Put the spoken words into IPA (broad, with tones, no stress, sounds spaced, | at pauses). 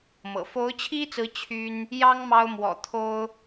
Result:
m ɤ̰˨˩ f o˧˥ ʊ̯ t͡ɕʰ i˥ t͡s ɹ̩˧˥ t͡ɕʰ y˥ n | j ɑ˥ ŋ m ɑ˥ ʊ̯ m w ɔ̰˨˩ t̪ʰ o˥ ʊ̯